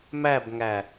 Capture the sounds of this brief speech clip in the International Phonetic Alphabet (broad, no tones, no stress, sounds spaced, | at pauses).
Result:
m æ b ŋ æ